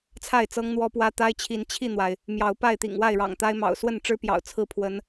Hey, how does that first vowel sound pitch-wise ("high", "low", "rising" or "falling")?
falling